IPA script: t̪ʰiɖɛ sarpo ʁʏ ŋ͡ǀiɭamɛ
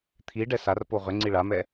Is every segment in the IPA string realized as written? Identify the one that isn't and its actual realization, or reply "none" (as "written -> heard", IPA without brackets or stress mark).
none